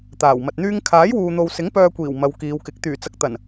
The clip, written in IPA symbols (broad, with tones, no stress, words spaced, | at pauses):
t̪aː˨˩wmɐ˨t̚n̪yː˥ŋ kʰaː˨˥jwuː˨n̪o˨wsɪ˨˥ŋ pœː˧kʷiː˨˩w mɐ˨˧wkiː˨˧wkɪ˨˥k̚ t̪yː˨˩t͡sɐ˨k̚t̪ɐ˨˩n